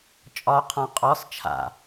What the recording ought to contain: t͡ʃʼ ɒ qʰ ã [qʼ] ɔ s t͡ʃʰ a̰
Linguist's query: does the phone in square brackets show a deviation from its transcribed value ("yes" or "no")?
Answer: no